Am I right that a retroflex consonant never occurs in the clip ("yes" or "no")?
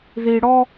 no